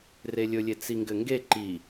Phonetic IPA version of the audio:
relʲɵlʲe t͡siŋɡɘŋɡe ǃi

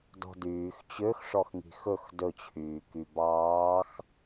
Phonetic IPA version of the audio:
dɔ̤dyːx t͡ɕøxʂɔxŋi̤ xɵx dɵt͡ɕʰyː kybɑːx

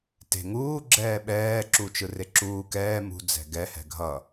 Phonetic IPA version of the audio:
te̤ ŋuː ɡ͡ǁɛːɓɛːǁu t͡ʃɯreǁuː kɛː mṳ d͡zɛ̤ɡɛ hɛ̤ɡʱʌ

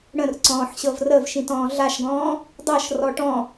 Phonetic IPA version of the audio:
ɽə̃rǀɔ̃ːħɕɤv rəvʃĩtɔ̃ː ɮaʃɡɔ̃ː | dˤɤʃrɔ ʈɔ̃

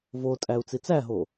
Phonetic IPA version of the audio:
votʼæu̯ t͡sit͡sæɦo

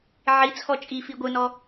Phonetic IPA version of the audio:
ʕit͡sʰɔ t͡ʃʼifi ɡʷɯnɔ

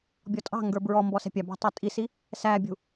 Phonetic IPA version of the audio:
bʲɔtʼɑ̤ŋɡə˞ bɹɔ mbɔsɛ̤pʲɑbɑ̤ tˤɛtʼisi | sæbʲṳ

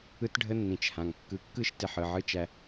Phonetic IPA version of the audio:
ɯ˦tɖʱə˦nːĩ˨t͡ʃhã˨ŋ kːɯ˨kːɯ˦ʃ tɪ˨ħɯ˨ʕɯ˦ t͡ʃæ˦

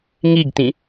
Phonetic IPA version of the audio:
ŋiɡtĩ

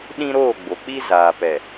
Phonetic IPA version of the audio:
ɗĩ˦ɾoː˦˨ɡ͡bo˨k͡pi˦ zaː˨ pɛ˨

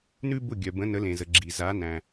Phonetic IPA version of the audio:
nʉ˥bʊ˥˩ ɡʲœ˩bə̃˩˥ nə˩˥lẽ˩zə˩ ɡ͡ǁi˩ za˩˥næ̃˩

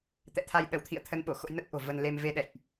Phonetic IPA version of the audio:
t̪ɛ̰˧˨t̪ʰa˧j ɗə˧˩wt̪ʰḭ˧˨ə̯t̪ʰə˨˦n ɓo˧˩xo̰˧˥jnə˦˥t̚ʔo̤˨˩ və˧nle˧m ve˧ɗɛ̰˧˨jʔ

